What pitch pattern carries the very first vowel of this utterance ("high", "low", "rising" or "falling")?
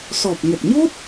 low